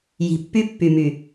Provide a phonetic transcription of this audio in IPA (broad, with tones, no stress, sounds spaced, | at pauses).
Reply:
j i̤˨ pː y˦ pː y˨ m y˨